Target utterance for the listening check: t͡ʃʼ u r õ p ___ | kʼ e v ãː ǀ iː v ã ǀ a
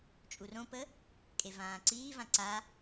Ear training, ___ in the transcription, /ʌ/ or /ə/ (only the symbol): ə